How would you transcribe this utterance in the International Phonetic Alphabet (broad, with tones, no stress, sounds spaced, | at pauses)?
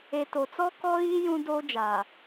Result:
e˨ t o˨ t͡s ɔ˦ k ɔ˦ ɣ iː˦ j ũ˦ d oː˦ d͡ʒ aː˨